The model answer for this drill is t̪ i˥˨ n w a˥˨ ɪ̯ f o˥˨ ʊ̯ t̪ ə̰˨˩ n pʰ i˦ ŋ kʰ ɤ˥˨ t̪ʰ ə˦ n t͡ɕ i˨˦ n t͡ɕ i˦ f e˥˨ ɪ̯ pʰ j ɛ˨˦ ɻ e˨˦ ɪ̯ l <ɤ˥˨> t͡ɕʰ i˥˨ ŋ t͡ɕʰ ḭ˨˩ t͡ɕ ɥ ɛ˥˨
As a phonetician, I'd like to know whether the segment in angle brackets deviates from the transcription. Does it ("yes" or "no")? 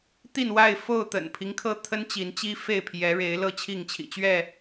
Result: no